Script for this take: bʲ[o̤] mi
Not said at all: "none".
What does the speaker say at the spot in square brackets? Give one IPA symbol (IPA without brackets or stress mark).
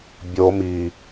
o